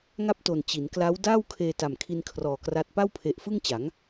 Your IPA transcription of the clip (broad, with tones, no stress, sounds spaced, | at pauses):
ŋ a˥˩ p̚ t o˨˩ n t͡ɕ i˩˦ n k l a˦˥ w d aː˥˩ w kʰ eː˧ t a˨˩ m kʰ i˧ n kʰ r ɔː˨˩ k r a˦˥ t̚ p a˥˩ w pʰ e˨˩ ʔ f ɯ˥˩ ŋ t͡ɕ a˩˦ ŋ